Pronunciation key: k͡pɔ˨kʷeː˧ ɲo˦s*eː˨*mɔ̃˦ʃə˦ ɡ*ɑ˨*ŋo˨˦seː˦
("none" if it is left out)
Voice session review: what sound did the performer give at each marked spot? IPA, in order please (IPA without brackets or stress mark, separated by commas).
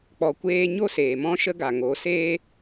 eː˨, a˨